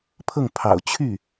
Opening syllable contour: falling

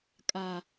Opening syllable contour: low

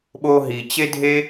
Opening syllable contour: high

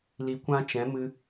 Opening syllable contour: low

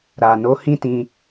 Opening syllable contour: low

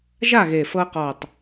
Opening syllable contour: falling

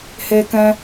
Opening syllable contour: high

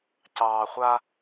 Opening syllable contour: low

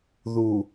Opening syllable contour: low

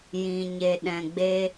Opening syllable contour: low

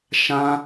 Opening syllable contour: high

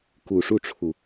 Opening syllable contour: low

